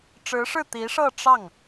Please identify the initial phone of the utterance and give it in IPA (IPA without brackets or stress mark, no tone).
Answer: ʈ͡ʂ